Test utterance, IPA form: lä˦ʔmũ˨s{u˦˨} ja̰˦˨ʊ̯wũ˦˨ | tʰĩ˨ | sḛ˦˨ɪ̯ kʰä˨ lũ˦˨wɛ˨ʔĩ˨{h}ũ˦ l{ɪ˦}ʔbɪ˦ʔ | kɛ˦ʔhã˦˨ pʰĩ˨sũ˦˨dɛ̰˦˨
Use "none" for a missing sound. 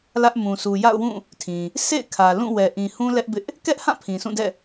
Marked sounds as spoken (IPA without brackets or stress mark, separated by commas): u˨, h, ɛ˦